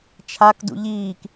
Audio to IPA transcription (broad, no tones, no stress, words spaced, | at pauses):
t͡ʃʰak dṵʎiːk